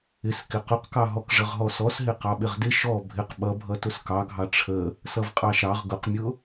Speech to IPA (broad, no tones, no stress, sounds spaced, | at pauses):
ɪ s k ɪ q ʊ q k ɑ ɦ ɔ k ʐ ə ʁ ɦ ɔ s ɔ s ɦ ɪ q ɑ ɓ ɪ ʁ d ɪ ʃ ɔ bʱ ɪ q ɓ ʌ bʱ ʌ t ʊ s k ɑ ɡʱ ɑ ʈ͡ʂʰ ə | s ʌ v qʼ ɑ ʃ ɑ ʁ ɡ ʊ q mʲ ʊ